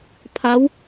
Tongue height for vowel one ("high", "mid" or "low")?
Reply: low